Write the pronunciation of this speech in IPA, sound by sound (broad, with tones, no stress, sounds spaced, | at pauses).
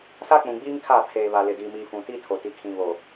s a˦ k͡p ũ˨ ɡ͡b iː˦ ŋ kʰ aː˦˨ pʰ eː˨ β a˨ l ɪ˨ d iː˨ m i˨ f ũ˨ t i˦ tʰ o˨ t i˨ kʰ ĩ˨ β o˨